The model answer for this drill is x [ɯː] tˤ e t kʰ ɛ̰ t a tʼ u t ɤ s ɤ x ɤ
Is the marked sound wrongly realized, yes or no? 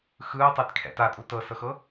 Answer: no